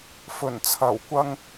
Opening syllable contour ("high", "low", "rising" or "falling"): low